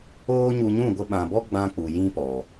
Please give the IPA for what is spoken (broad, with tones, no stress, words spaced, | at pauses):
oː˦ ɲu˧ɲũ˦˨ ɡʷə˧ɓã˨bɔ˦ ɡ͡bã˧ k͡pu˨jĩ˦pɔ˨